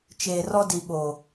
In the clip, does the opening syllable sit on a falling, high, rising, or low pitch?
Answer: low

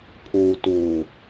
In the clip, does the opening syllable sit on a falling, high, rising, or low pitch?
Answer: low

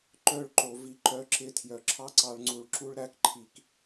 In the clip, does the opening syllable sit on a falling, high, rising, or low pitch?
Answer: falling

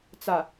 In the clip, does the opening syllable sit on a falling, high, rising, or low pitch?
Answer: low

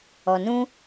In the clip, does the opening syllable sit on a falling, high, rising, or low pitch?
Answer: low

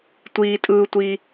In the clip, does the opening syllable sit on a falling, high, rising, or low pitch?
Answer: high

